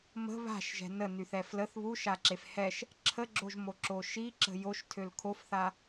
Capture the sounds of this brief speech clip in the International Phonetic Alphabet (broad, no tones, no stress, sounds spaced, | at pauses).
m ə̤ β a̤ ʃ ʒ ɛ̤ n ə n y θ ɛ f l ə θ β u ʃ a ǁ e f h ɛ ʃ | ǁʰ ə ɡ͡ǁ o ʒ m o ǁ o ʃ i ǁ ə̤ j o ʃ tʰ ø l kʰ o f θ a